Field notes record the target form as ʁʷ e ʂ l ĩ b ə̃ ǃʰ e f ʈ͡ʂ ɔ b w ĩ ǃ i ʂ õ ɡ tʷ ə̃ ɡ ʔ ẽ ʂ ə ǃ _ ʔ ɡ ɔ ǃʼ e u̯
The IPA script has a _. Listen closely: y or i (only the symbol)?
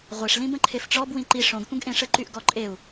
y